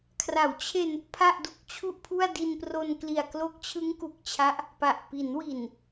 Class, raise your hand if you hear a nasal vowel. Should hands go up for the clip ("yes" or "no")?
no